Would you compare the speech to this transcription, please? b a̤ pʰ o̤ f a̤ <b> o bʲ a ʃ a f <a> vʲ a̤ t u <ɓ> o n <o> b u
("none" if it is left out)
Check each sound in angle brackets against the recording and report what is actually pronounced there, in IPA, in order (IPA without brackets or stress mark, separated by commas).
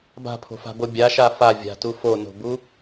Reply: b, a, f, o̤